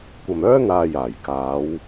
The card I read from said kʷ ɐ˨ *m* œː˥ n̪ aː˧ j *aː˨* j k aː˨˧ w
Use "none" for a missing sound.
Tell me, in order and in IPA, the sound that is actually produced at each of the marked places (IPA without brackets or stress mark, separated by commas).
m, aː˨˩